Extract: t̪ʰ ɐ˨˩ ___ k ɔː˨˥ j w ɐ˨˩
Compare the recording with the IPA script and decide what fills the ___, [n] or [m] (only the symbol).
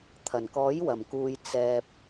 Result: n